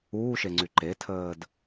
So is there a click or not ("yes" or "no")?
yes